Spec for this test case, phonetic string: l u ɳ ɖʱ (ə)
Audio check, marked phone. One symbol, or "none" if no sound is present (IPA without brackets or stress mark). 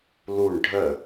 ə